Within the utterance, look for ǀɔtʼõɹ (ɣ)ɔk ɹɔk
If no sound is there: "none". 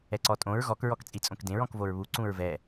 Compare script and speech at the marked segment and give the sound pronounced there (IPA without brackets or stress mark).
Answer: ɣ